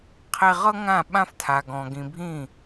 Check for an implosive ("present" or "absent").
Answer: present